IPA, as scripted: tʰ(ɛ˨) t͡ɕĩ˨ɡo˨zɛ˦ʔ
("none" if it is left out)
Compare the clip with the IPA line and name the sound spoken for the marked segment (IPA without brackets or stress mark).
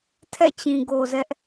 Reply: ɛ̰˦˨